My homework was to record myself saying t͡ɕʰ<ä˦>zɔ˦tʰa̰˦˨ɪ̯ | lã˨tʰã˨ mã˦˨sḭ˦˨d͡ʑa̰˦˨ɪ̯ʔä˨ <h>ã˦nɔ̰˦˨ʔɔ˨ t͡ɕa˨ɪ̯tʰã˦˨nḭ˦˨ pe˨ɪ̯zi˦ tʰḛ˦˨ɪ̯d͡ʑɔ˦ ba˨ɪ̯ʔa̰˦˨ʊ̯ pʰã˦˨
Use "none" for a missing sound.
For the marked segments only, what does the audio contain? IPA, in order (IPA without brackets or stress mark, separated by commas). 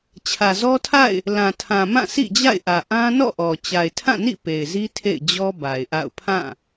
ä˨, ʔ